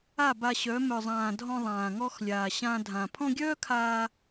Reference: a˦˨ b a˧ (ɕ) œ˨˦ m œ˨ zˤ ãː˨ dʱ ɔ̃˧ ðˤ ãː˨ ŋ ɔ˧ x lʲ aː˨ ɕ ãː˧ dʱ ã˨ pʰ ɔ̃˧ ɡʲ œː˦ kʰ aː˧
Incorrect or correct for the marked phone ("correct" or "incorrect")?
correct